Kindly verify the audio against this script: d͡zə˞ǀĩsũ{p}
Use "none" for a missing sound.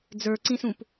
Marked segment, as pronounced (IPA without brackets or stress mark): p